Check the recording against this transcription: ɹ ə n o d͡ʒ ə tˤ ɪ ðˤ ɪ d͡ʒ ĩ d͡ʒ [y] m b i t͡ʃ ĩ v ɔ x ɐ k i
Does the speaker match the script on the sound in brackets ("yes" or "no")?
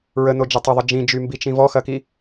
yes